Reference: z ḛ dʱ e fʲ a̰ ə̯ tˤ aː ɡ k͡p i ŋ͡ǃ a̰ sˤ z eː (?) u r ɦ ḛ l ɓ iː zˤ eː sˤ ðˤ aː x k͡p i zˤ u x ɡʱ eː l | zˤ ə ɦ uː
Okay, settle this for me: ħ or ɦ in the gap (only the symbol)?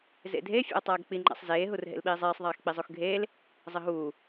ɦ